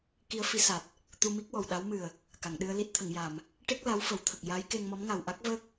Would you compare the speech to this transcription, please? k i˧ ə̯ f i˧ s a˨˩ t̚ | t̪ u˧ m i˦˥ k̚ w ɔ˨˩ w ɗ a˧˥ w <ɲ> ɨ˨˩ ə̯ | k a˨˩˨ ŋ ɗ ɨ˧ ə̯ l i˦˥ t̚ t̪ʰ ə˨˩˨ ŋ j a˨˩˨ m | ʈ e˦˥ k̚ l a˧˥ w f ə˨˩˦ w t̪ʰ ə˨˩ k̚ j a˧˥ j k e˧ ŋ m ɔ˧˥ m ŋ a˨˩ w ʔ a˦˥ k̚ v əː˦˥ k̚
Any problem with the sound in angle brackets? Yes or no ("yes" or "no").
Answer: yes